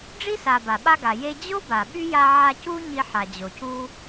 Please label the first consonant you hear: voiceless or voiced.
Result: voiced